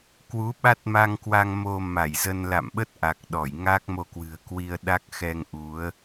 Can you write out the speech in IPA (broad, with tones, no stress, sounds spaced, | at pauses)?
k w u˨˦ ɓ a˦˥ t̚ m a˧ ŋ k w a˧ ŋ m o˧ m a˧˩ j z ə˧ n l a̰˧˨ m ɓ ə˦˥ t̚ ʔ a˨˩ k̚ ɗ ɔ˧˩ j ŋ a˦˥ k̚ m o˧ k w ɨ̤˨˩ ə̯ k w i˧ ə̯ ɗ a˦˥ k̚ x ɛ˧ ŋ ʔ u˨˦ ə̯